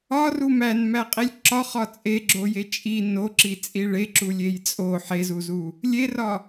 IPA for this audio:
ɒru mænmæqʼilʲ ǁɒχɒ t͡sʼeɡ͡ǁoje t͡ʃʼi noǁit͡sʼi ɭeǁulʲej t͡sʼo ħezuzu | lʲerɒ

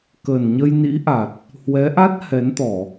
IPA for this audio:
kəː˨˩nɲə˧jnḭ˧˥ʔa˨˩t̚ | hwɛ˨˦ʔa˦˥t̚ hɛ˨˦nt̪ɔ˧˩˨

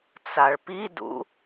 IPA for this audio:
t͡saɭpidṵ

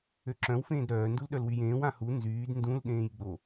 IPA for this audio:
øǁœ̃w fẽːdɾœː ndulɗœlwyjẽːw ãhu nzyːd ndũl ɗẽːjɡ͡bo

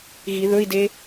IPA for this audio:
ɣi ðɵi̯de

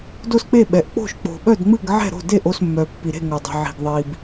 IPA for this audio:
do˥˩sk͡pe˥˩ɓɛ˩ʔ k͡po̤˥˩ʃk͡po̤˩ɓœ˥˩dŋ͡mɨ˥˩ɡ ʕɛ̤˥˩ɾo̤˥˩de˥˩ʔo˥˩s mːœ˩pːi˩ɾe̤˥˩ ŋœ˩dˤi̤˩ʕi̤˩ɡ ðˤi˩b

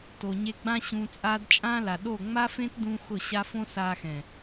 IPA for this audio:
to˨ɲe˧ ɡ͡bã˦ɕũː˧t͡sʼa˦d t͡ʃʼãː˦la˨ ɗo˦˨ ŋ͡ma˦fẽ˦t dũ˦xʊ˦˨ɕa˦f õ˦saː˧xɛ̃˨

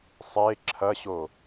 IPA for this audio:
sˤe ǁʰɐɕo

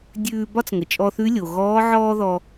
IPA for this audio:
dʲʉː˧bɒ˥t͡sŋə˩ t͡ʃʼɔ˧θʉ˧˥lʲo˩ɣɔː˧˥ ʕɔː˥ðɔ˧

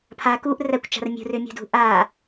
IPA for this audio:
pʰa kuʔ rækʷt͡ʃa̤r mʲṳrʏmʲṳdṳ ʔa

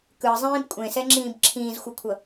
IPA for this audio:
kɯzˤĩːb kʷʼẽsɛŋ͡ǁĩːb ǁʰĩːzxʷɯkʷʰʌ

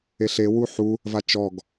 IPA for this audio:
eɬe wuħu | vat͡ʃɔɡ

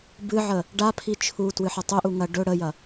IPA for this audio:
bɨʕə | ɖapʰi t͡ʃʰu twɨħɐtˤɵʔu ŋɐ ɖɵ ɽəjɐ

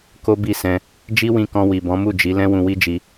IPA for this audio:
ko˦bi˦˨sɛ̃˧ | d͡ʒi˦wĩ˧kɔ̃˧ wi˨bɔ̃˨˦mu˦˨d͡ʒi˨˦ lɛ̃˦wũ˧wi˦d͡ʒi˧

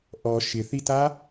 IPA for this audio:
ʔɔ ʃɪθita

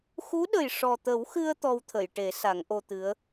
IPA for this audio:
xu˧˥ɗə˨˩j ʂɔ˨˩t̪ə˨˩˦wxɨ˧ə̯ t̪ɔ˧wt̪ʰə˨˩˨jʈe˨˩˦ sa˨˩˦ŋʔo˧t̪ɨ˧˥ə̯

